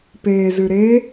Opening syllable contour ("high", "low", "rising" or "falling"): low